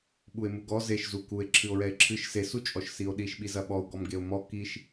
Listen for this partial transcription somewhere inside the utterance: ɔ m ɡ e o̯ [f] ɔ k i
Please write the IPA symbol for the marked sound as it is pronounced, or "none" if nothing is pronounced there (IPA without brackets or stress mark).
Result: m